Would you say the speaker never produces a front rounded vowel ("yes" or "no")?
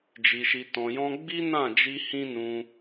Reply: yes